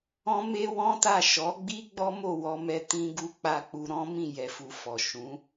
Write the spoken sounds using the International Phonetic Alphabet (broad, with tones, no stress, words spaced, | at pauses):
ɔ̃˦me˦wɔ̃˦ta˦˨ ʃɔ˨˦ɡ͡bi˦ ɡ͡bɔ˦mo˦˨wɔ˧mɛ˧ tĩ˧ɡu˧ k͡pa˧k͡pu˧ ɾɔ̃˦mĩ˦˨ jɛ˧fu˧fɔ˨ ʃũ˨˦